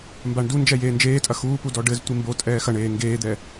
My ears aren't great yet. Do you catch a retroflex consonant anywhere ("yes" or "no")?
yes